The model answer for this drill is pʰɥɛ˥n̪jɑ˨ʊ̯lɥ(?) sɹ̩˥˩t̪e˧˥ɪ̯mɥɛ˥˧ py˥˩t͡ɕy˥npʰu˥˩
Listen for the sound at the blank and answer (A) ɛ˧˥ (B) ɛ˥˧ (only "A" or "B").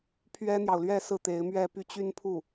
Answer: B